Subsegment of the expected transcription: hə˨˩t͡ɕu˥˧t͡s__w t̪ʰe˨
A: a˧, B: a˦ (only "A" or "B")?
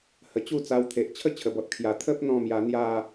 A